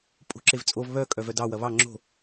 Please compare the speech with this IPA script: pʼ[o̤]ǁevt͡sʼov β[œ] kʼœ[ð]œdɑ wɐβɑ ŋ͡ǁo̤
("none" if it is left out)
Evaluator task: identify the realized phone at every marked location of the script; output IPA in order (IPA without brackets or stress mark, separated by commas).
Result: o̤, œ, v